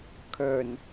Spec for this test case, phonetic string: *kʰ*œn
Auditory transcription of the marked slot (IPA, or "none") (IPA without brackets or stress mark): kʰ